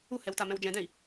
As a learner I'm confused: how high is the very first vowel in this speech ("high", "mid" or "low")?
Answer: high